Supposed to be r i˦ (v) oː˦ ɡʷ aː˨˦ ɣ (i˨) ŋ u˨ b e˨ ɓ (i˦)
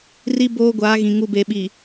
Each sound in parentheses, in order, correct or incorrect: incorrect, incorrect, incorrect

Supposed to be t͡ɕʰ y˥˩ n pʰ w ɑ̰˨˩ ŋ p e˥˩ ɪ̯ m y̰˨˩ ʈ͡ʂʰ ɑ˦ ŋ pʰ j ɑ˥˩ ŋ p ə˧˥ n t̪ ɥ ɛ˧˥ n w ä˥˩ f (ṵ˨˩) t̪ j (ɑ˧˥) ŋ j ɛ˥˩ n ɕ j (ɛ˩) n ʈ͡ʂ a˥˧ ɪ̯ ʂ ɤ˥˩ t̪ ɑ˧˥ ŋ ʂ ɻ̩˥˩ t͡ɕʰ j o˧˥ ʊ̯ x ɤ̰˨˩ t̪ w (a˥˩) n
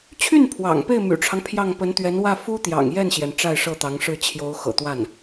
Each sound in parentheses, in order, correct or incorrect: incorrect, incorrect, correct, correct

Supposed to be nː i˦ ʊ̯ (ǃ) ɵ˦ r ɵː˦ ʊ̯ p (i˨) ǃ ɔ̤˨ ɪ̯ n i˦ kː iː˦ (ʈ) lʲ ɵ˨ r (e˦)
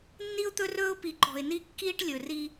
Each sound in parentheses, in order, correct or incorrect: incorrect, correct, correct, incorrect

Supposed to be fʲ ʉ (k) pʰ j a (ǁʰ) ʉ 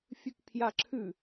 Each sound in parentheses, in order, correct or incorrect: correct, correct

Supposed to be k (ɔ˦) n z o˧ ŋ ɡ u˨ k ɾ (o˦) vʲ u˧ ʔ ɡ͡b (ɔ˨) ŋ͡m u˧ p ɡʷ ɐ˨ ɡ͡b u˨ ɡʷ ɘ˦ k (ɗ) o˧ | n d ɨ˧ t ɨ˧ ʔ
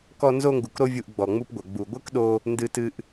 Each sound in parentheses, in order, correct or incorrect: incorrect, correct, correct, correct

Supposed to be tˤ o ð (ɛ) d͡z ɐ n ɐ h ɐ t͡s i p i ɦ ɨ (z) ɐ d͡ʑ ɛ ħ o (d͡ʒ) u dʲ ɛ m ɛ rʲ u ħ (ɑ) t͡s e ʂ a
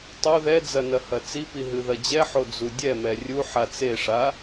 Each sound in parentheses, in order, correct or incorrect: correct, incorrect, incorrect, incorrect

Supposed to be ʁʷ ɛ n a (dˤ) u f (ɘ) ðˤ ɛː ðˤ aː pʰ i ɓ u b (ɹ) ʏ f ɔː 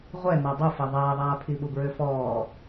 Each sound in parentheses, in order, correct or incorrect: correct, incorrect, correct

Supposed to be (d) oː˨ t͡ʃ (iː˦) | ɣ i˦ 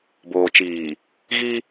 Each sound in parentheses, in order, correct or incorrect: incorrect, incorrect

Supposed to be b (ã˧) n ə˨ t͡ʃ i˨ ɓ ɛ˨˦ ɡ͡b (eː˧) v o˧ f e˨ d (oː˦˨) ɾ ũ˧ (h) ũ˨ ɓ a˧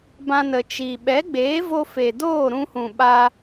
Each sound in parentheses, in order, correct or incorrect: correct, incorrect, correct, correct

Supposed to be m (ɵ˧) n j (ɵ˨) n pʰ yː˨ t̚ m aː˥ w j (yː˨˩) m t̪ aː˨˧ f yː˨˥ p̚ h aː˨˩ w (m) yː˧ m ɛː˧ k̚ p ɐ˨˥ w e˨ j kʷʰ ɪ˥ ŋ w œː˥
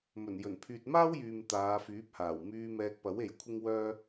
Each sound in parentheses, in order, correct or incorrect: incorrect, incorrect, incorrect, correct

